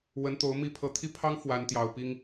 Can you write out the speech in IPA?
w ə˨˦ n t̪ o˨˦ ʊ̯ m i˨˦ pʰ ɤ˨˩ t̪ʰ i˥˨ pʰ ɑ˦ ŋ f w a˨˦ n t̪ j ɑ˨˩ ʊ̯ p i˦ ŋ

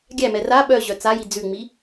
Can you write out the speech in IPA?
ɡʲ æ m ɛ r a ɓ œ ʑ œ t͡s a j i d͡z ʉ ŋ͡m i

